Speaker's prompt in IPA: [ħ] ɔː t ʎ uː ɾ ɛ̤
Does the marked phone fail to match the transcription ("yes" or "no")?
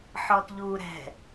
no